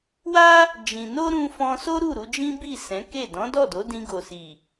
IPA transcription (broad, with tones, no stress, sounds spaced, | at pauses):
w a˦ | d͡ʒ ĩ˧ n o˦ ɾ ũ˧ f ɔ̃˧ s o˦ ɾ u˦˨ ɾ u˧ d͡ʒ ĩ˦ b i˦˨ s ɛ̃˨˦ k e˦˨ d ɔ̃˨˦ d ɔ˦˨ d o˨˦ d ĩ˧ ɡ o˨ s i˨